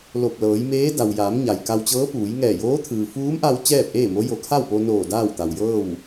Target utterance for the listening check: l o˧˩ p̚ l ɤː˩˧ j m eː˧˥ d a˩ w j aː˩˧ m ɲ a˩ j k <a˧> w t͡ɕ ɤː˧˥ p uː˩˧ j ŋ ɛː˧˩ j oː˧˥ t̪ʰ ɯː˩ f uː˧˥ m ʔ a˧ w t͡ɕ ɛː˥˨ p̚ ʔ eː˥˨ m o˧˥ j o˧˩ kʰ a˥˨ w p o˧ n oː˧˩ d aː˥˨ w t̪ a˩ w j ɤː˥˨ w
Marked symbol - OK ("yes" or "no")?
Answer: yes